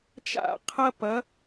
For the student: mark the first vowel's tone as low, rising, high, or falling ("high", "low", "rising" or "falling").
falling